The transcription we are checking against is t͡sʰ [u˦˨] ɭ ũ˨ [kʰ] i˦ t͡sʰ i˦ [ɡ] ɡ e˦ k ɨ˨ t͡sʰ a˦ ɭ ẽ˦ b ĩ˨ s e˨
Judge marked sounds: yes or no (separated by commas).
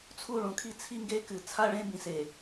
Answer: yes, yes, no